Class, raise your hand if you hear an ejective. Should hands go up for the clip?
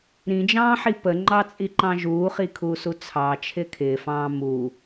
yes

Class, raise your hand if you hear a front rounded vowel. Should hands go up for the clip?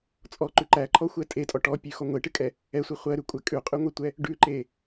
no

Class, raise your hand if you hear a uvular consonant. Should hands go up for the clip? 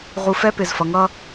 yes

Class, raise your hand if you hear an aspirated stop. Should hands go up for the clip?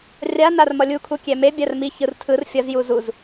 yes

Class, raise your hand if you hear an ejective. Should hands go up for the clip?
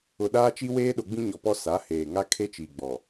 no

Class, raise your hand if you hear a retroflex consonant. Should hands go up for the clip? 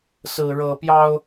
yes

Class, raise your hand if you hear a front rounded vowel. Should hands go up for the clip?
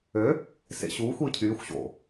yes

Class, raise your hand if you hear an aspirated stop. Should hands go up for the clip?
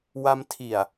yes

